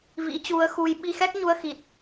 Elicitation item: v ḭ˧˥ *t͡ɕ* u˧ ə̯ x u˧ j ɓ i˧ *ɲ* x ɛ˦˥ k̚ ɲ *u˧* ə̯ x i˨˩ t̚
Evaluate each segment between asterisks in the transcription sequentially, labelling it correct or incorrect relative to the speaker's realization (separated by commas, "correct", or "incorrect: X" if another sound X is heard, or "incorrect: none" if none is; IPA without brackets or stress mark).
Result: correct, incorrect: none, correct